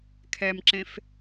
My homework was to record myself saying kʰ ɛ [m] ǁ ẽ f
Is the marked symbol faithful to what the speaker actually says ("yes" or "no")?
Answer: yes